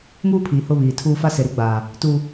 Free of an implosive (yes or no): yes